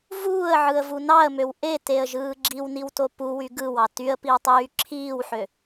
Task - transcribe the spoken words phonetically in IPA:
vuːə̯ʕɯə̯vu nɑə̯møw ʔeteə̯ʒɯː ɡ͡ǁiwniwto puwy ɡɯwɑ tyə̯piwtˤyː ǁʰiːwħø

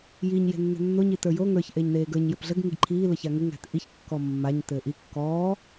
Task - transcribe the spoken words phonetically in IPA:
jiɲ je̤nːe̤nːo ɲitə˞jo ŋə˞ç ʔeːɲneːɡə˞ɲ jɘpɮəɡ ŋiɡǃʰiː ləçaŋɘ ŋæ̤tʔiç kːɔmːaɲ tɘːʔi kːɔː

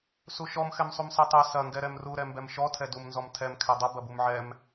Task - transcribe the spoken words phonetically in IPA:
suʃɔm xɛmsˤumsɛtˤɛ sɐ ŋɡɛɾɛmru ɾɛmbɛmʃɔ tʰɛdum nzɔmtʰɛm kʰɛdˤɐ bɐbumʕɛm

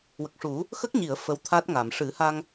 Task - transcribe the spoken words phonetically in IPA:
wə˨˩k̚ʂu˨˩˦ | xə˦˥k̚ɲi˨˩˨ə̯ fə˧˥wt̪ʰa˦˥t̚ŋa˨˩˨m ʂɨ˨˩˦ha˧ŋ

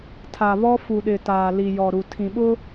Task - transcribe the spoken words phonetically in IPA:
tʰa˨βɔ˦ fu˨ɗɪ˨ taː˨li˨ jɔ˨ɾu˨tʰĩ˨ɓʊ˦

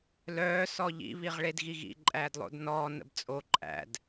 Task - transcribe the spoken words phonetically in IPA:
lœː sɔʎḭ βiʁɭedɣiɣḭ ǃʼæːdlˠo̰dnɔː nə̰bt͡sʼo ǃʼæ̰d

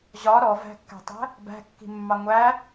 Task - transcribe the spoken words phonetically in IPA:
ʑɒ ɾɔvæ̤kːæ̤tˤæ̤ | bæ̤kːi̤mːɑ ŋʷæ

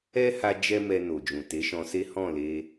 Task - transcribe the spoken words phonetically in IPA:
ɛ˦ha˧ d͡ʒɛ˦mɛ˧ no˨d͡ʒũ˨te˨˦ ʃɔ̃˧se˦ hɔ̃˦˨ le˧

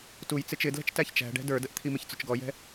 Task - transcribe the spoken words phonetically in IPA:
tuj t͡sɪt͡ʃɪ dlɛ̤t͡ʃtæçt͡ʃæ̤ɖɛ̤ də˞dəʔt̪ʰi mɪçt͡sʊt͡ʃɡɔjɛ̤

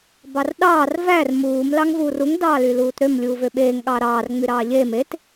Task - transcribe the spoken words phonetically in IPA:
bɑrɗɑːr vær muːm lɑŋvuːruŋ dɑːlyluːtɾøm lʲuːvøɓeːŋ ɠɑɾɑːr ŋ͡myɾɑːʎeːm et

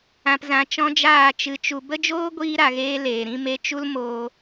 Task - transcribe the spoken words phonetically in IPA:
ã˨pzã˨ t͡ʃɔ̃˦d͡ʒaː˦˨ t͡ʃɨ˨t͡ʃu˨ bə˦d͡ʒoː˦ ɡʷiː˦ ɾa˨ɣeː˧ leː˨ɾĩ˦me˦ t͡ʃu˦l moː˧

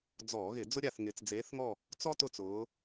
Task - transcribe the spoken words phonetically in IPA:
d͡zɔː˧˩˧ɣɪ˧˩˧ d͡zʊ˥ɾʲa˦˨θŋɪː˨˦t͡s d͡zeː˨˦θŋɔ˦˨ | t͡sɔ˥tʊ˦˨t͡s ʊː˨˦

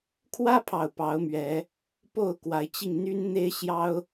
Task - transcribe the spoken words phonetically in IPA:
kʰwä˦pʰɑ˨˩ʊ̯ pɑ˨˦ʊ̯mɥɛ˨˦ | po˥˨ʊ̯kwa˨˦ɪ̯t͡ɕi˧ŋ n̪y˦nn̪e˦ɪ̯ɕjɑ˦ʊ̯

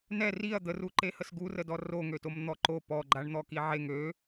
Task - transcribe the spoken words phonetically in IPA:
nɛ riɐ̯ d̪əruǃe həsɡurədɔ roŋøtom n̪ɔǃo pɔɡ͡ǃaɳ n̪ɔkiʕeŋ ø

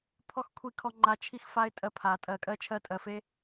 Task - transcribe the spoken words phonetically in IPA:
pʰɔ˦x kʷʰi˦kʰɔ˦ŋ͡ǃa˦ t͡ʃʰi˦xfa˦ɪ̯ tʼɜ˦pʰa˨˩˦ tʼɜ˨˩˦kʼɜ˦t͡ʃʰɜ˦ tʼɜ˨˩˦fe˦

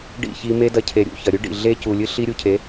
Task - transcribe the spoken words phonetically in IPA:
ɖḭ˦˨çi˧ me˦dɐ˧cʰe˨ ɾʲṵ˦˨çɐ˨ɾʲʉ˦ɖḭ˨ ɮe˦ cu˨lʲɨ˦ ɬi˦ɾʲu˧cʰe˨˦

